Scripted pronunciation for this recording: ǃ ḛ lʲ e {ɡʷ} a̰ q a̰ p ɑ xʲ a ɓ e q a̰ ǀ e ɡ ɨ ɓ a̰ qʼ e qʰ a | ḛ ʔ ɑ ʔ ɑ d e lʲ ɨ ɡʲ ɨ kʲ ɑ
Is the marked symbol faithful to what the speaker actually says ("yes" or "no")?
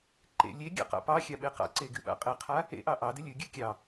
no